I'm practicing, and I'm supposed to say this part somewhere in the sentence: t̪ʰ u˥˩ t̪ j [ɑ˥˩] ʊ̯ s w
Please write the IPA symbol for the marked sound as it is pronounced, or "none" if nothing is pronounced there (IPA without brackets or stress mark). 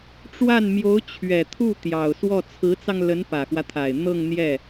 ɑ˨˩